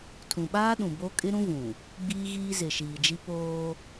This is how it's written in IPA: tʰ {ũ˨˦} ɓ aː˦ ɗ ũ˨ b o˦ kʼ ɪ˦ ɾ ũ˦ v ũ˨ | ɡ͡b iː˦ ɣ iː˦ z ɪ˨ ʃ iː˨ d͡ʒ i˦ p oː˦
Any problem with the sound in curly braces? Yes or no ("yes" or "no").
yes